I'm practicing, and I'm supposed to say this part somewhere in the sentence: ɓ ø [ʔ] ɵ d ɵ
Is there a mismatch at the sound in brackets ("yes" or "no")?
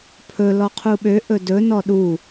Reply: no